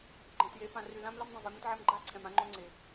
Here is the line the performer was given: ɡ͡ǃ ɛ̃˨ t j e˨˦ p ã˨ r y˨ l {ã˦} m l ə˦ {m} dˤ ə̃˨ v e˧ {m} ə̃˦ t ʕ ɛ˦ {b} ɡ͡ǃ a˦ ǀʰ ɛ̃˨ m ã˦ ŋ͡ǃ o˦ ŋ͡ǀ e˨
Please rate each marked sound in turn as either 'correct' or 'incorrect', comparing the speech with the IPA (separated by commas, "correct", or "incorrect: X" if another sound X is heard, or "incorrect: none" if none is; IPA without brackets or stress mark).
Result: correct, correct, correct, incorrect: m